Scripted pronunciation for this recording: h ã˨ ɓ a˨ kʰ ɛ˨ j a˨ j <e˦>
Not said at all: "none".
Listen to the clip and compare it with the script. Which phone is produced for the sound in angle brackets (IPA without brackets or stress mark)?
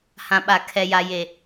e˨